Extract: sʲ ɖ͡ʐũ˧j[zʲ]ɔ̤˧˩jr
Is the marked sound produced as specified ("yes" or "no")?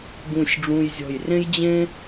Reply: yes